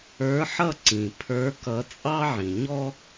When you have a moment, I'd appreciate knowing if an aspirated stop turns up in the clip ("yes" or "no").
yes